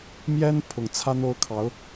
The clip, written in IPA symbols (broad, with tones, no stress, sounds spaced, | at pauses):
m j ɛ˥ n pʰ ʊ˨˩ ŋ t͡sʰ ä˥ n̪ o˥ ʊ̯ kʰ ɑ˧˥ ʊ̯